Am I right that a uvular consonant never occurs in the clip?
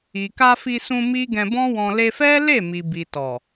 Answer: yes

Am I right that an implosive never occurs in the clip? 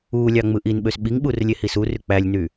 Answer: no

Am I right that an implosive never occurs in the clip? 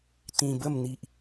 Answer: yes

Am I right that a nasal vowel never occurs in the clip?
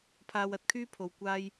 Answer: yes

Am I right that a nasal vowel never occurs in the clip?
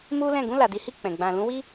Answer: no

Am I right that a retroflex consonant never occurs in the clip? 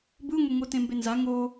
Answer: yes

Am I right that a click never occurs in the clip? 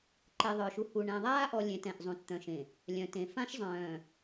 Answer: no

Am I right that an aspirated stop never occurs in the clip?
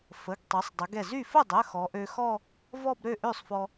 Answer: yes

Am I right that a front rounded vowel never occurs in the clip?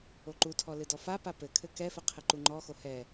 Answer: yes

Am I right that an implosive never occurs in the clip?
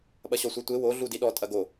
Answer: no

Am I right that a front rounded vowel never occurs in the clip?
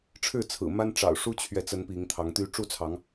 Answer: no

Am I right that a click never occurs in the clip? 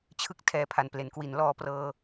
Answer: yes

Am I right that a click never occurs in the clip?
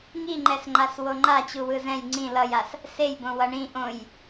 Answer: no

